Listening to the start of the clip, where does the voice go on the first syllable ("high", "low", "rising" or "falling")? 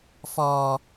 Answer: high